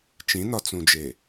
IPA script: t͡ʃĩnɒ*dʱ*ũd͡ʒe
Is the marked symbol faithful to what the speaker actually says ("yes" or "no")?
no